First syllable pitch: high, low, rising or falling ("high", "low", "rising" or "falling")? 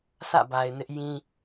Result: falling